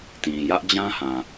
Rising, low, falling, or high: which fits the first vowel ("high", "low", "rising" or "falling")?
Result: low